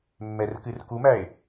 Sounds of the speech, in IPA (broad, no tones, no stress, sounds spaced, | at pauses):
mː ɛ r k ɨ r k u m æ e̯